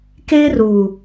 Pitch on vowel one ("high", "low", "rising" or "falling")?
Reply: high